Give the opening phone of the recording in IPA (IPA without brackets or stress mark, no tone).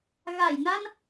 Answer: ɣ